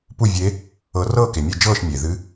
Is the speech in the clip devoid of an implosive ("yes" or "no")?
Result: yes